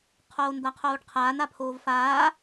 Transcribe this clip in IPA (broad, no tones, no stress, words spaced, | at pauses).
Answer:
qʰoːnd̪aqʰoːɖqʰaːn apʰoːvfaː